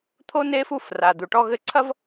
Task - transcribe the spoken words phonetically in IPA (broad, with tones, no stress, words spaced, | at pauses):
t̪ʰo˦ ne˦fu˦˨f ra˨d̪u˨ʈɔ˦ɣɘ˦ ǀʰɐ˦v